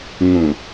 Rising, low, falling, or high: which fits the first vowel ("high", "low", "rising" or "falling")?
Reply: low